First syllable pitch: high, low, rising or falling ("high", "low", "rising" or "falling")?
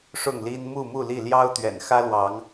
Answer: falling